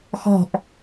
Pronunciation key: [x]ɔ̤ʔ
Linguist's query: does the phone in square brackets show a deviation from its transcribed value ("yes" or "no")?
no